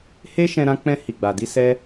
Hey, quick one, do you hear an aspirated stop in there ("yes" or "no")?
no